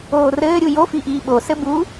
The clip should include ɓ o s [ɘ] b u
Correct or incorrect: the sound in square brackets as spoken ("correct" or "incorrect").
correct